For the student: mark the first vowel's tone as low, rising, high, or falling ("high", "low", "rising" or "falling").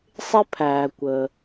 high